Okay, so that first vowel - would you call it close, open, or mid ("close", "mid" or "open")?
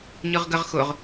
close